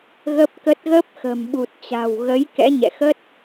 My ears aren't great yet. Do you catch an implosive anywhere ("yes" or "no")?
yes